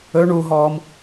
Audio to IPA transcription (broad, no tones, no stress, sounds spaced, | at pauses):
ɵ ɳ u ɦ ɔ m